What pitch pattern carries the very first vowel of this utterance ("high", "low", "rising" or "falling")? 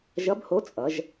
rising